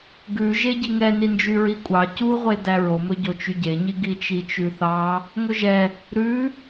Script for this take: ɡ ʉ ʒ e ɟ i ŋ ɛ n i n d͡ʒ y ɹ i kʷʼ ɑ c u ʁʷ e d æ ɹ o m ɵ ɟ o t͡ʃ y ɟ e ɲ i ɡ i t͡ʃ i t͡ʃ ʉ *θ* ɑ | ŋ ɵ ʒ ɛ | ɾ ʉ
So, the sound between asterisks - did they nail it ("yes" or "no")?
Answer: yes